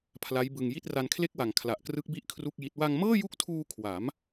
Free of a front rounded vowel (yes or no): yes